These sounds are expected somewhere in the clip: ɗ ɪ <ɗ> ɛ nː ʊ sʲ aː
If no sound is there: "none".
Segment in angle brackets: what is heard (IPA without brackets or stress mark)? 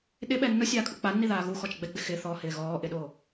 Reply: ɓ